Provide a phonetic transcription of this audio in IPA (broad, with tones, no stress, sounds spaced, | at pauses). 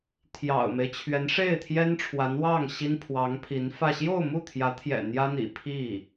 t̪ʰ j ɑ̰˨˩ ʊ̯ m e˦ ɪ̯ t͡ɕʰ ɥ ɛ˧˥ n ʂ e˥˩ ɪ̯ t̪ʰ j ɛ˥ n ʈ͡ʂʰ w a˧˥ n w ɑ˥˩ ŋ ɕ i˥ n pʰ w ɑ˧˥ ŋ pʰ i˧˥ n f ä˥˧ ɕ j o˥˧ ʊ̯ m u˥˩ t̪ʰ j ä˧˥ t̪ʰ j ɛ̰˨˩ n̪ j ä˥ n̪ ḭ˨˩ pʰ i˥˩